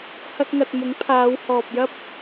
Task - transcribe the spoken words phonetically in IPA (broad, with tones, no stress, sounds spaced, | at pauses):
h ɐ˥ k̚ ŋ ɐ˧ t̚ m ʊ˨˥ ŋ pʰ aː˨˧ w h ɔː˨ p̚ j ɐ˥ p̚